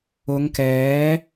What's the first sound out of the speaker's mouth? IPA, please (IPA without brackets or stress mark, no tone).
ʊ